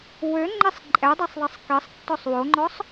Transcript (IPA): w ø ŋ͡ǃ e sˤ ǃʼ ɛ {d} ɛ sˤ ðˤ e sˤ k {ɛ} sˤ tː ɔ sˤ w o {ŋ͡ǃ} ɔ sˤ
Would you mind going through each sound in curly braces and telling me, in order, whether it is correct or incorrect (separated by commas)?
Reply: incorrect, incorrect, correct